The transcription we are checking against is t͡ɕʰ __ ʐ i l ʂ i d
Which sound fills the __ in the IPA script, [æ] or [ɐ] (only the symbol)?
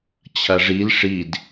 ɐ